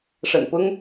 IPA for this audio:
ʂ ə̰˨˩ n p ʊ˥ ŋ

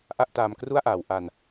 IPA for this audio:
ʔ a˥˩ ʔ t aː˧ m k r u˥˩ a̯ ʔ aː˩˦ w ʔ a˧ n

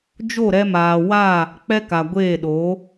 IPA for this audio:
d͡ʒ o˦˨ ɾ ɛ˧ m aː˨ w a˦˨ | k͡p ɛ˦ k a˨ ɡʷ eː˦˨ ɗ o˨˦

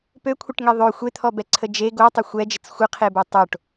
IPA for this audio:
p ø kʷʰ ɪ ʈ ŋ e ðˤ ø xʷ e t̪ʰ ɔ b ɛ ǀʰ ə d͡ʒ e ɡ o tˤ ɪ xʷ ɛ d͡ʒ ə t͡s xʷ ɪ qʰ e b o tˤ o ʈ

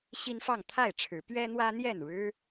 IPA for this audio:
ɕ i˦ n f ɑ˥˨ ŋ t̪ʰ a˥˨ ɪ̯ ʈ͡ʂʰ ɻ̩˨˦ p ɥ ɛ˦ n̪ w ä˦ n̪ j ɛ˥˨ n ɻ ɻ̩˦

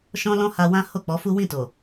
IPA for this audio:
ʃ ɔ̃˦ l ɔ̃˦ h a˧ w ã˦ h o˦˨ k͡p ɔ˨˦ f u˦ w ĩ˦˨ t o˨

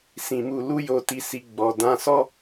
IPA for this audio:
s ĩ˧ m u˧ l u˦ j o˧ t i˧ s i˧ ɡ͡b ɔ˧ d ã˧ s ɔ˦

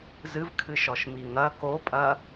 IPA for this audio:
z ɨ v kʰ ɨ ʃ ɔ ʃ m i ŋ ɐ k o pʼ ɐ

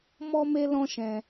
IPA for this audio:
m ɔ˦ m e˦ l ɔ̃˦ ʃ ɛ̃˧

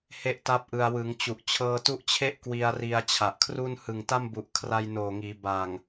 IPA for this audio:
h e˥˩ ʔ t a˥˩ p̚ ʔ ɯ˧ a̯ w ɯ˩˦ ŋ t͡ɕ u˨˩ ʔ t͡ɕʰ ɤː˧ t u˦˥ ʔ t͡ɕʰ e˥˩ ʔ k w i˧ a̯ r i˧ a̯ t͡ɕʰ a˨˩ ʔ kʰ r u˥˩ n h ɯ˨˩ ŋ t a˥˩ m b u˨˩ ʔ kʰ r a˧ j n oː˨˩ ŋ iː˩˦ b a˨˩ ŋ

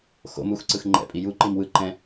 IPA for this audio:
x o̰ m u x ǀ ɯ x ŋ͡ǃ ɛ̰ pʼ i j u ǃ i m w ɯ ǃ ɛ̃

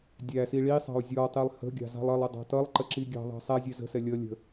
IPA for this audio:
dʲ æ s i ɭ i sˤ ɑ̤ u̯ zʲ ɔ tˤ i lˠ h ə̤ ɡʲ ɑ̤ z ɑ̤ lˠ ʌ lˠ ɪ dˤ ɑ̤ t ʌ lˠ ǃ ə ǁ i ɡʲ ɑ̤ ðˤ ɑ̤ sˤ æ zʲ ɛ z ə̤ s ɛ lʲ ʌ lʲ ə̤

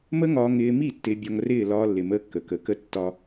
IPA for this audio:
m ə˦ ŋ ɒː˧ ŋ ɪː˧ m i˦˨ tː ɪː˧ bʲ ɒ˧ ŋ r ɪː˦˨ l ɒː˧ lː ɪ˨ m əː˧ kː ə˨ k ə˨˦ k ə˦ tː ɒ˧

